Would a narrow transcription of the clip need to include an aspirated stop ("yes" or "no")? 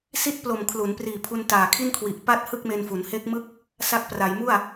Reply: yes